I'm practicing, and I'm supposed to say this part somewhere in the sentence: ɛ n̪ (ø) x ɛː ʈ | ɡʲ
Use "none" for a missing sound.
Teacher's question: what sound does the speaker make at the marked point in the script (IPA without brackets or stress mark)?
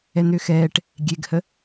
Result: ø